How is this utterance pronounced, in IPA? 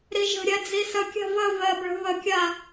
ɾ i ʒ ə̤ ɾʲ æ d͡z i s ə kʲ a̤ v ə v ɜ b ɭ ə̤ β ə kʲ a

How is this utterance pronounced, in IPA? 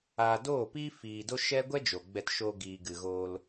aː˧ d oː˦˨ p iː˦ f iː˧ d o˦ ʃ ɛ˦ ɡʷ ɛ˦ d͡ʒ o˨ ɡ͡b ɛ˧ t ʃ oː˧ ɡ iː˨ ɡ ɨ˨ ɣ oː˧ l

